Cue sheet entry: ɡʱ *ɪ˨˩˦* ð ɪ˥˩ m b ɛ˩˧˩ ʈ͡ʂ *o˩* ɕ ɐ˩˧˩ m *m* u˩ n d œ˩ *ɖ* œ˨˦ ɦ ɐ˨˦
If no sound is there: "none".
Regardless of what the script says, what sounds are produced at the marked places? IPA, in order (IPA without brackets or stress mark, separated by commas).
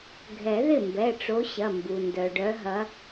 ɛ˨˩˦, o˨˦, b, ɖ